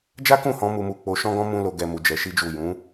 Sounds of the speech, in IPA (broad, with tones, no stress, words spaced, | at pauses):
d͡ʒa˦kũ˦˨hɔ̃˧ mu˧mu˧ k͡po˧ʃɔ̃˦ɡɔ̃˦ mũ˦lo˧ɡɛ˧ mu˧d͡ʒɛ˧ʃi˦d͡ʒu˦˨ jũ˨˦